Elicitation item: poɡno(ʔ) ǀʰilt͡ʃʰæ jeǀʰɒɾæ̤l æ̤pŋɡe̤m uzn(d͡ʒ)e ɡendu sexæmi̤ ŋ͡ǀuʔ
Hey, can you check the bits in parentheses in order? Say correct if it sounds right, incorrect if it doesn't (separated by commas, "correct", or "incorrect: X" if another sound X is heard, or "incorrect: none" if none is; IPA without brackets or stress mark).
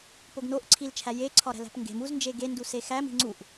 correct, correct